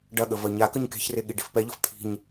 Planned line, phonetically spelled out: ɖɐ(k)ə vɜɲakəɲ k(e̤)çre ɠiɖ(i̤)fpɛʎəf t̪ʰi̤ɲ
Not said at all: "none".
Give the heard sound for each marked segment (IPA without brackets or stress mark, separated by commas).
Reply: ɠ, e̤, i̤